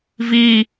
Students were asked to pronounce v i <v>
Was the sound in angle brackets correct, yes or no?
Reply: no